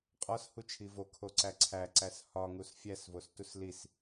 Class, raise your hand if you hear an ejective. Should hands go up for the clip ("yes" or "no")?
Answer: yes